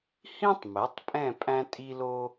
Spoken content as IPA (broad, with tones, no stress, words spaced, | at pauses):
hĩ˥tˤmɛ˩˥tˤpʼɛ̃˦˨ pʼæ̃˥tʼi˥lo˥